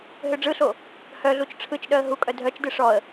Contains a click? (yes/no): no